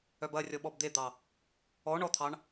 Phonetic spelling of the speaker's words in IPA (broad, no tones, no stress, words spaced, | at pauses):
œbɐrʲɔ ɓɔbd̪ed̪ɑ | ɔ ɳɔt̪ʰɑɳ